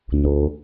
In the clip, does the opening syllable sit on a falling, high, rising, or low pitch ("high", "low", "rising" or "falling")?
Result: low